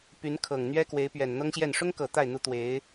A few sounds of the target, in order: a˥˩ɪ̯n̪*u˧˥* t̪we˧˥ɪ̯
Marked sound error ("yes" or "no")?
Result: no